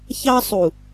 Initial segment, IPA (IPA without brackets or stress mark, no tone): ç